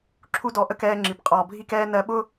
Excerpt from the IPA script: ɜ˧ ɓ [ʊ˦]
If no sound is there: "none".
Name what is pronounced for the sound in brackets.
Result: ʊ˦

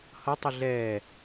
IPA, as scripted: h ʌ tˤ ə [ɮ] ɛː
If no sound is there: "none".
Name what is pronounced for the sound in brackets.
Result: ɮ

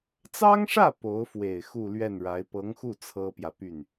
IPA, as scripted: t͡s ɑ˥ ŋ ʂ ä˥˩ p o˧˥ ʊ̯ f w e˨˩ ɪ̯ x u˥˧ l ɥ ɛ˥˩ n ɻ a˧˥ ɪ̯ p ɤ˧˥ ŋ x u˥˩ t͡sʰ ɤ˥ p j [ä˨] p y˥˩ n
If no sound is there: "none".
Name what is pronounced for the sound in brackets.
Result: ä˨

